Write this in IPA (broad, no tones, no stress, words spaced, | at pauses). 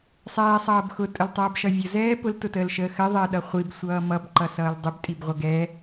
sˤɛːsˤʌːbxʊ tʼəltˤʌːbʃʌvʲʊ zɛːpʊl tʊtəːlʃəːxɜ ðˤɜɗʌχʷib sʷʌːmʌb ǃʌsʌːldˤəb tʼibʁʷəɡɛ